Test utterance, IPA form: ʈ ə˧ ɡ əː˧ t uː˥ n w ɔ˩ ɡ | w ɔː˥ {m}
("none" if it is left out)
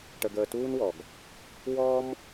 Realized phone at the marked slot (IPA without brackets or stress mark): m